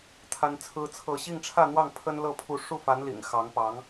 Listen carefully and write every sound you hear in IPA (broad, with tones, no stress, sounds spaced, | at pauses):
t̪ʰ a˥ n t͡sʰ ɹ̩˥ t͡sʰ ɤ˥˧ ɕ i˥˧ ŋ ʈ͡ʂʰ ä˥˧ n̪ w ɑ˥˩ ŋ pʰ ə˥ n l ɤ˥˧ pʰ u˥˧ ʂ u˥˩ f a˧˥ n l ḭ˨˩ ŋ x ɑ˧˥ ŋ p ɑ˧˥ ŋ